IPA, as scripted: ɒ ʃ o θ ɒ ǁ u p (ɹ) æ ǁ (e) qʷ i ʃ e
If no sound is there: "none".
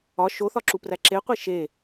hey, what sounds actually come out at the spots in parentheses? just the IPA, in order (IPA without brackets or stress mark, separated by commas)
r, e